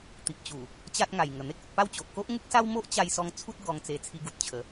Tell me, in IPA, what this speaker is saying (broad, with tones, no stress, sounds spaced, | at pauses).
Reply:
t̪ i˨ p̚ t͡ɕ u˨˩ | t͡ɕ a˦ t̚ ŋ a˨˩ j ŋ ə˨˩ n̪ e˦ k̚ u˨ t̚ p a˥˧ w t͡ɕ o˨ ʔ k o˦ ʔ ŋ u˦ k̚ s a˦ w m o˦ ʔ t͡ɕ a˧ j s ɔ˧ ŋ t͡sʰ u˦ t̚ ɡ ɔ˧ ŋ t͡s e˧ t͡sʰ i˧ ɡ u˨ t̚ t͡ɕʰ ə˨˦